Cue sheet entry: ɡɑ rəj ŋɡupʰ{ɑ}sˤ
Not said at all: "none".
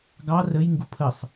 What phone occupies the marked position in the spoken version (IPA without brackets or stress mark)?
ə